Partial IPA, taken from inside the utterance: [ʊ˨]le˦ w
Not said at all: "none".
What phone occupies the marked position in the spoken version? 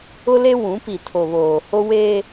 ʊ˦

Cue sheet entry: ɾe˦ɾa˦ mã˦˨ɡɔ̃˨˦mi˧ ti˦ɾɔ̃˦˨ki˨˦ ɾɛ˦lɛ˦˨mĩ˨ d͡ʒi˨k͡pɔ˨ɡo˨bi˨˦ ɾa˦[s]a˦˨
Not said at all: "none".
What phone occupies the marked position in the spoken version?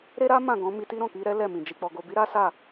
s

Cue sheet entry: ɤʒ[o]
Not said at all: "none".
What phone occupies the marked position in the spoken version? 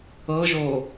o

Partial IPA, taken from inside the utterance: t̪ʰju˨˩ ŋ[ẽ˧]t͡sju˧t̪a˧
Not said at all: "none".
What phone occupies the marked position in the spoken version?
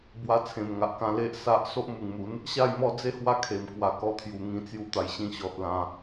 ĩ˧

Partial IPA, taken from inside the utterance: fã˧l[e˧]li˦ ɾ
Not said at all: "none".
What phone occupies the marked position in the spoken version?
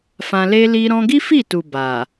e˦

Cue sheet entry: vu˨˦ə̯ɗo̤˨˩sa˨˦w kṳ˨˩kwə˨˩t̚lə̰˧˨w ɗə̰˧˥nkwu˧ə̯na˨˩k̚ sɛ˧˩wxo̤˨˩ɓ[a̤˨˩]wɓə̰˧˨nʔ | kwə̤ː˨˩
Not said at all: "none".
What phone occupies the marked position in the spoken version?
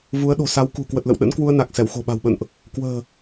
a̤˨˩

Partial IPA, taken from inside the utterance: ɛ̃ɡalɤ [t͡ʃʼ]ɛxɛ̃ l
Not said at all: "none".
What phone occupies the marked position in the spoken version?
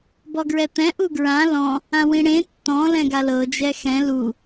d͡ʒ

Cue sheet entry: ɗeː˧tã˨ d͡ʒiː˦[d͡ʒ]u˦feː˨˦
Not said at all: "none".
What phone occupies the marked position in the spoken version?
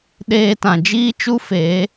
t͡ʃ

